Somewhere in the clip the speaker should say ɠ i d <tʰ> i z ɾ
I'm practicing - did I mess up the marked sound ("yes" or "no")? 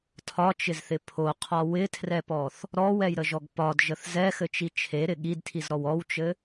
no